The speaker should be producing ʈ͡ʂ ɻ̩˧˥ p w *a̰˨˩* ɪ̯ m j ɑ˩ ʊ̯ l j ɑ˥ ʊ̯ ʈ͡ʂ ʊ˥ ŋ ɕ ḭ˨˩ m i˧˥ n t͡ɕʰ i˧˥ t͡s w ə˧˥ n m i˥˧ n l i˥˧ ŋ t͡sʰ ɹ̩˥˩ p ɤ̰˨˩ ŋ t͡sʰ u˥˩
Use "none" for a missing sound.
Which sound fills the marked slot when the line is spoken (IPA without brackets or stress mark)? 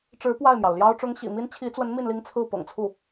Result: a˥˩